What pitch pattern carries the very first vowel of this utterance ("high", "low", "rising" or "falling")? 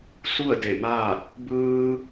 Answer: falling